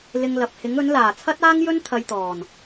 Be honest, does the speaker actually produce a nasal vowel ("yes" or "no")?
no